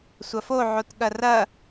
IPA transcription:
sʷ ɐ f o ʕ o t ɠ ɐ r ɐ

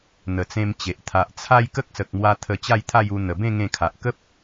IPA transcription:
n̪ ə˨˩ t͡s ẽ˧ m t͡ɕ e˨ ʔ t̪ʰ a˨ ʔ t͡sʰ a˦ j k ə˦ k̚ s ə˨ k̚ m w a˧ t̪ʰ ə˧ t͡ɕ a˥˧ j t̪ʰ a˥˧ j u˧ n̪ ə˨˩ b ẽ˥˧ ŋ ẽ˧ kʰ a˨ ʔ k ə˦ p̚

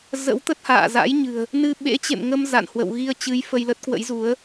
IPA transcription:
z ə̰˧˥ w t̪ ə˦˥ t̚ h a̰ː˧˨ z a̰˧˥ j ɲ ɨ̤˨˩ ə̯ | n ɨ˧ ɓ ḛ˧˥ t͡ɕ ḛ˧˨ m ŋ ə˧ m z a̰˧˨ n h w ə̰˧˨ w ɣ i˧ ə̯ t͡ɕ ɨ˨˦ j f ə˧ j l ə˦˥ t̚ k w ə̰˧˥ j z u˨˦ ə̯

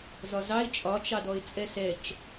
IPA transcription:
z ɒ z ɑ ɪ̯ t͡ʃʼ ɒ t͡ʃ ɑ d ɔ ɪ̯ t͡sʼ ɛ s ɛ t͡ʃ

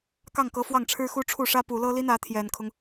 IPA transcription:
k ɑ˥˩ ŋ k ɤ˧˥ f w ɑ˥˩ ŋ ʈ͡ʂʰ ɻ̩˥ x u˥ ʈ͡ʂʰ u˥˩ ʂ ä˥ p u˨˩ l ɤ˥ l i˥ n ä˧˥ t̪ʰ j ɛ˨˩ n kʰ ʊ˦ ŋ

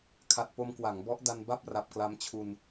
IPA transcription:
kʰ a˨˩ t̚ p o˧ m k w a˩˦ ŋ b ɔ˦˥ ʔ d a˧ n b a˥˩ p̚ r a˨˩ p̚ k l a˧ m t͡ɕʰ u˧ n

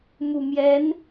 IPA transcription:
m u˨˩ m j ɛ˧˥ n

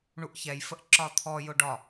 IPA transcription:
ɳ u ʔ ç ɛ j f ə ʔ ǁ ɒ t̪ʰ ɔ j ʊ ɖ ɒ

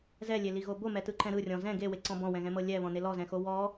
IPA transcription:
z ɛ lʲ e l i ɣ o b o m ɛ t ɯ ǃ ɛ̃ ɾ ɯ rʲ ɔ̃ z ɛ̃ ɡ e w e ǀ ɔ̃ b ɔ̃ w ɛ̃ ɣ ɛ̃ m ɤ lʲ ɛ β ɔ̃ n e l ɔ z ɛ̃ x o w ɔ

